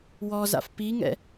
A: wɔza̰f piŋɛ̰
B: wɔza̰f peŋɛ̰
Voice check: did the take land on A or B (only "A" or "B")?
A